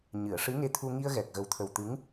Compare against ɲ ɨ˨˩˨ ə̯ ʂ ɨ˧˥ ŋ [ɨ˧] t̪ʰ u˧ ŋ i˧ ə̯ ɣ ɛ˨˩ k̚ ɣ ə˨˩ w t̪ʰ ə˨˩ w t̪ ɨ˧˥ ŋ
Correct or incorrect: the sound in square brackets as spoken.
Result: incorrect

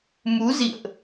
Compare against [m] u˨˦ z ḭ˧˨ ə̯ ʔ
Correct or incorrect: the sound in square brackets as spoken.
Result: correct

